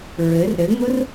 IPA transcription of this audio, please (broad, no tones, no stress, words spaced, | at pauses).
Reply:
ɹɘr ɾɘŋʊr